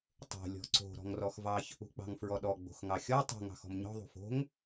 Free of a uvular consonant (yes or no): yes